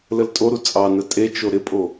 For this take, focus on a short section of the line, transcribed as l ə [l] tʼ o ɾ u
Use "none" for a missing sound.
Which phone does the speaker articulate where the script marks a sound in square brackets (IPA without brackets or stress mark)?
l